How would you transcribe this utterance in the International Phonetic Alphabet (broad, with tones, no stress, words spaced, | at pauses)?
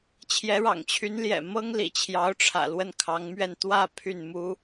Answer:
t͡ɕʰjɛ˧˥ɻɑ̰˨˩ŋt͡ɕʰy˧˥nljɛ̰˨˩ mɤ˥ŋ lḭ˨˩t͡ɕʰjɑ˧˥ʊ̯ʈ͡ʂʰä̰˨˩ lwə˥˩nkʰɑ˧˥ŋmɥɛ˥˧n t̪wä˥˧ pʰy˥˩nmu˥